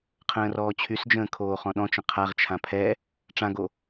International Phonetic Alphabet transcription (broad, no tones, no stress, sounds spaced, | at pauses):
qʰ ə̃ː r ɔː t͡ɕʰ y s d͡ʒ ə̃ː kʰ oː χ ɔ̃ ɗ ɔ̃ t͡ʃ ə̃ qʰ a ʁ t͡ʃʰ ã pʰ ɛ | ʈ͡ʂ ã ɡ o